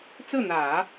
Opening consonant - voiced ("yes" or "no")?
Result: no